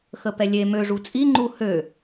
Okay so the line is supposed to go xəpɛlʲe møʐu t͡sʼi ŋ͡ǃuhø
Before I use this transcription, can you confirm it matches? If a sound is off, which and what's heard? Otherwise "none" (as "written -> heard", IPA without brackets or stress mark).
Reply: none